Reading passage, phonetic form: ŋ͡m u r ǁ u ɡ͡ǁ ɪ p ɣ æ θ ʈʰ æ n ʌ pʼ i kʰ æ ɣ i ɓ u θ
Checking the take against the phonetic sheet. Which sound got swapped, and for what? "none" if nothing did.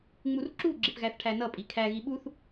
none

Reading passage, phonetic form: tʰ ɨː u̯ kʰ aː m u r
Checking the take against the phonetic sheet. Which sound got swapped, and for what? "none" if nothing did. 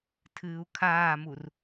none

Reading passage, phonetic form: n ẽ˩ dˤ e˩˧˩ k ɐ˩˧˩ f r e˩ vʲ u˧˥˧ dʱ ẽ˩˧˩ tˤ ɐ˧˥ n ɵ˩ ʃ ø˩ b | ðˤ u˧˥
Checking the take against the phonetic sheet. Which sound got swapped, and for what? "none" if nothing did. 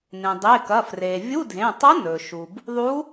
ø˩ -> u˩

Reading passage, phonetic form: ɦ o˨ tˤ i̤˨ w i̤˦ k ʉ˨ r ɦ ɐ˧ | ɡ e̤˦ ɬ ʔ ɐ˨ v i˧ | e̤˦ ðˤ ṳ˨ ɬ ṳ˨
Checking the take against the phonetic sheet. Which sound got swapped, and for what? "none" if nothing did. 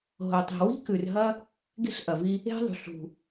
none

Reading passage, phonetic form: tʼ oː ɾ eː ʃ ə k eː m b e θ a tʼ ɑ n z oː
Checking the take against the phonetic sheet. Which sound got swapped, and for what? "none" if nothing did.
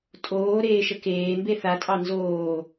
none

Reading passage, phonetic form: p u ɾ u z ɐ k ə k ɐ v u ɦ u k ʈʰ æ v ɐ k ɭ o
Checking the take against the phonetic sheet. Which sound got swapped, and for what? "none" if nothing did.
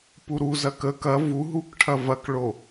æ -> ɐ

